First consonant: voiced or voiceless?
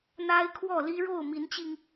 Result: voiced